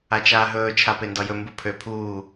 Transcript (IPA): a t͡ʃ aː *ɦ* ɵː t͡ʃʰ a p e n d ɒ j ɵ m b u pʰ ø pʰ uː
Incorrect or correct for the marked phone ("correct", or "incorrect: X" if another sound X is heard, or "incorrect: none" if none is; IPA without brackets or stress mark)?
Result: correct